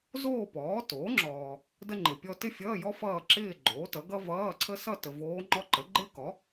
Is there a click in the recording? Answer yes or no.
yes